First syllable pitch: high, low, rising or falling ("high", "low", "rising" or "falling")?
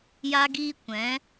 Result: high